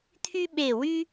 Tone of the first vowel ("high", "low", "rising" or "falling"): high